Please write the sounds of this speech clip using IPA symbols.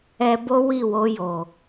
ɛ˧ b o˦ w i˦˨ w o˧ j o˨

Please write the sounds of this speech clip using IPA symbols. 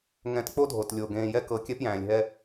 ŋ ɛ̃˨ t k͡p o˥ dʱ o˩ t lʲ o˩ ɡ ẽː˨ j ɛ˦ k ɤ˨ kʲ ɛ˥ p j æ̃ː˩ lʲ ɦ ɛ˦

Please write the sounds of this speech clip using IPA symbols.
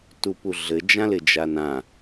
t u p u ɮ ɘ d͡ʒ ã l ɪ d͡ʒ a n ã

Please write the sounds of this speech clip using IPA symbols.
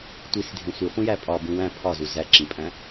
tʷ i s dʱ ẽ sʷ i χʷ ĩ j æ pʼ ɒ b ũ w æ̃ pʰ ɒ z u z æ ǁ ĩ pʼ æ̃

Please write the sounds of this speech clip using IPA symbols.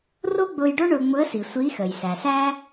r o˥ ɡ͡b ʊː˧ j ɖ o˥ ɳ ʊː˧ ŋ͡m ʊ˧˥ ə̯ s i˩ sʷ iː˧˥ x əː˩ j s æ˩ s æː˥

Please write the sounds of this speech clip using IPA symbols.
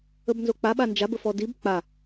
ə b n z o k͡p a ɓ a n d͡ʒ a b ə f ɔ d i b k͡p a

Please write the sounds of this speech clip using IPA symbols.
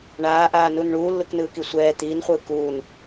ɳ aː ʔ aː n u n ɳ uː lː ɯ k n ɯː k i sʷ ɛː t̪ iː n χʷ ɯː k uː n

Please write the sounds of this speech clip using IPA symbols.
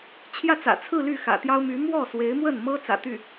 t͡ɕʰ j ä˥˩ t͡s ä̰˨˩ t͡sʰ ɹ̩˥˧ l y˥˩ x ä̰˨˩ t̪ j ɑ˥ ʊ̯ m y˧˥ m w ɔ˥˩ s w e˧˥ ɪ̯ m w ə˥˩ n m ɤ˥ t͡s ä̰˨˩ t̪ y˥˩

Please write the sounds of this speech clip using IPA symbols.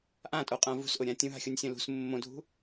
ʔ ã tʼ o qʼ ã v ṳ s ʔ ʊ ɾʲ ã tʲ ũ ɦ a̤ xʲ o nʲ sʲ õ l ṳ s mː õ dʱ ṳ

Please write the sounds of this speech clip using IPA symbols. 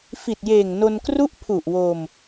f i˨˩ t̚ j eː˨˩ ŋ n o˧ n k r u˥˩ ʔ pʰ u˨˩ ʔ w o˧ m

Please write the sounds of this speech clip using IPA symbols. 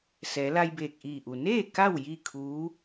s ɛː˩˧ l a˧ j b eː˧˩ k̚ ʔ iː˧˩ ʔ u˩ n eː˥˨ k a˥˨ w j i˥˨ kʰ uː˧˥

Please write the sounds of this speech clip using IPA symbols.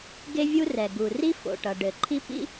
ɡ e˥ vʲ u˥ r ɛ˩ ɡ u˩ r i˥ f o̰˩ ʈ ʌ˩ ɖ ɘ˩ ǃʰ i˥ p ḭ˥

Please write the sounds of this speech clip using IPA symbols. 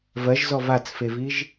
v ɜ ʒ z ɔ v a t͡s f e v i ʒ

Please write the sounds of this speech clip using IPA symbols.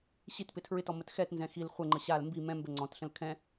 ɕ i t p ɪ tʰ ɹ ɪ t ɔ m ə t x ɛ t n z ɛ̃ x i l χʷ ɛ ŋ͡ǃ ə ɕ a l m b i m ɛ̃ m b ə ŋ͡ǀ ɔ̃ t ɬ ə̃ l kʰ ɛ̃

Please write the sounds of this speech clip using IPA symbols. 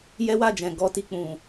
j ɛ˦ w a˦˨ d͡ʒ ɛ̃˨ ɡ ɔ˧ t i˨ k͡p ũ˨

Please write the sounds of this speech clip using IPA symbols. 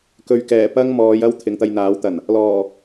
k ɵ˨ ɥ k ɛː˨˩ p ɐ˥ ŋ m ɔː˨˧ j ɐ˥ w t̪ʰ ɪ˨ ŋ t̪ ɐ˧ j n̪ aː˨˥ w t̪ ɐ˨˩ n | l ɔː˨˩

